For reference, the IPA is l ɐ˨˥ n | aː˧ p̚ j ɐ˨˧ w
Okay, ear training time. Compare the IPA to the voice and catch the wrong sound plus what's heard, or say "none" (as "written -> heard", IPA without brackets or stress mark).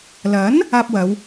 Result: j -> w